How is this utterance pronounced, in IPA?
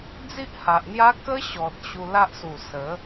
d͡z i˦ ʔ h a˨ ʔ n̪ j a˦ k ə˦ ɕ ɔ˨ t̚ ɕ u˧ l a˦ ʔ s u˨˩ s ə˨˦

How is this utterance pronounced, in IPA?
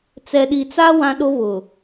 t͡s ɛ˨ ɗ i˨ t͡s a˦ w ã˦ ɗ o˦ β ʊ˨

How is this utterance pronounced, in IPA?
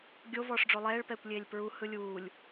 ɡʲ o v ɔː ʂ ɖ͡ʐ o lˠ ɛː ɭ p ɛː kʷ lʲ eː lʲ p ɹ u h ɯ lʲ uː lʲ

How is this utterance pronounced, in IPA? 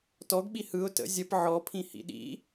t ɔ ɡ ɓ i h ɯ ʊ̯ t ə̰ zʲ ə p ʕ ɔ pʰ ĩ h ḭ ɗ ḭ

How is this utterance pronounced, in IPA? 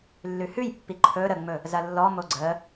lː ʉ h ʉ j pː i ǃʰ ɵ ɾ ə ŋ͡m ɵ | z ɐ lː ɔ m o ɡ͡ǀ ə

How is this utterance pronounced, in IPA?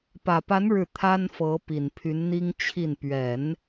p ä˨˩ p a˧˥ n ɻ ɻ̩˥˩ t̪ʰ a˥ n f ɤ˧˥ p i˨˩ n pʰ y˧˥ n n̪ i˥ ŋ t͡ɕʰ i˥˩ n p ɥ ɛ˨˩˦ n

